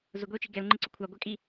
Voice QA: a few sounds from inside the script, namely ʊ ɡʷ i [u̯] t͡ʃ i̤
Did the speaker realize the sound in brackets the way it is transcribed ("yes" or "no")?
yes